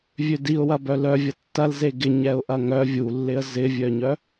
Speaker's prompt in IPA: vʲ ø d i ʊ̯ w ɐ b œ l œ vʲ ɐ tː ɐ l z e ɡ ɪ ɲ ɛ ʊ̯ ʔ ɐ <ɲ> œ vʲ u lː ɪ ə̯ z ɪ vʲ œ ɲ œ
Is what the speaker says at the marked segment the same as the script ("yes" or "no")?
no